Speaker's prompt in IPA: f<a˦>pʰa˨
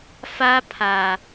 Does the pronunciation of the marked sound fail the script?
no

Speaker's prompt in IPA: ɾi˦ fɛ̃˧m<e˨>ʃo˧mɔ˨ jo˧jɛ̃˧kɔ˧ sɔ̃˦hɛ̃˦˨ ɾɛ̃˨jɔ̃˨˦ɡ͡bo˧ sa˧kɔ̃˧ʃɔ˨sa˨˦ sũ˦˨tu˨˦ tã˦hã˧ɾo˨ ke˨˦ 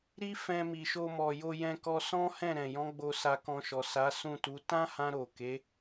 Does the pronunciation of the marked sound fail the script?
yes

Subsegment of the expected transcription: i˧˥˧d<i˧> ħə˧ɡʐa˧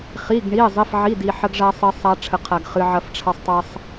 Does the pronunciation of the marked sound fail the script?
no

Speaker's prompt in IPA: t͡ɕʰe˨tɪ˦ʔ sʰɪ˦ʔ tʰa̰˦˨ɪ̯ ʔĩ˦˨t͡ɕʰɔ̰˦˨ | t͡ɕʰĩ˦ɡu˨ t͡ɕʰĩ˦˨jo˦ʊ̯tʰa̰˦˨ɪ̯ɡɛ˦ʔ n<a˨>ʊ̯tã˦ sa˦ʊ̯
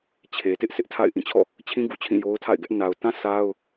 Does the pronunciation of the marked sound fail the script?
no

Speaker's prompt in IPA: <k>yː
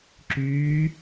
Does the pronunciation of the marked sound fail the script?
yes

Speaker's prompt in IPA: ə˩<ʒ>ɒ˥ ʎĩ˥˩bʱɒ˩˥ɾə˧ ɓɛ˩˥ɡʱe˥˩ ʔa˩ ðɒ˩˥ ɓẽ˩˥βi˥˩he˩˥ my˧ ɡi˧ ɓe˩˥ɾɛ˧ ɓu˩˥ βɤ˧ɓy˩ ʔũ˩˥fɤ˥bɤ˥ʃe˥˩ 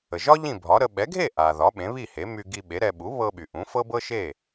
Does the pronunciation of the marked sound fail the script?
no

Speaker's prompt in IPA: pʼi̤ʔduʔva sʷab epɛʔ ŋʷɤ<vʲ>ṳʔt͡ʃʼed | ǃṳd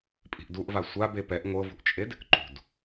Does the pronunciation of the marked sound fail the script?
yes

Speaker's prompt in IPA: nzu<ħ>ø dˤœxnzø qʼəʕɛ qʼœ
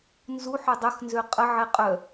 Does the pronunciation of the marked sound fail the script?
no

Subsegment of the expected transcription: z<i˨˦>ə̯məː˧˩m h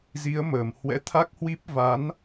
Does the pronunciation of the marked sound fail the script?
no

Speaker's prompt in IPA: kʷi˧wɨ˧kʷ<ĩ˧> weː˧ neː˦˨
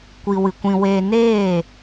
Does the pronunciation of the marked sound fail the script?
no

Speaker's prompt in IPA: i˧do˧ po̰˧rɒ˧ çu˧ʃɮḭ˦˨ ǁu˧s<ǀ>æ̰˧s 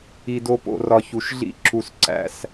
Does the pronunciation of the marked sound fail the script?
no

